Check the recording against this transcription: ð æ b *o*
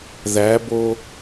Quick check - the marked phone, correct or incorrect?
correct